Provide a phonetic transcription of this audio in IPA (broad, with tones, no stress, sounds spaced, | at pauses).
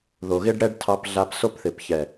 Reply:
ð o˨ ɣ ɪ˦ ɖ ɽ ɛ˦ ɖ tʰ ɑ˧ p ɮ a˧ p s o˦ p θ ɪ˨ p ç ɛ˨